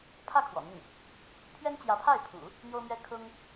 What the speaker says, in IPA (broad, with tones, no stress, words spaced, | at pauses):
pʰä˥˩ kʰwɔ̰˨˩n̪ə˥˩n | pʰɥɛ˥nt͡ɕjä˧˥pʰa˥˩ɪ̯pʰṵ˨˩˦ | n̪jo˥ʊ̯mɥɛ˥ kʰʊ˥ŋ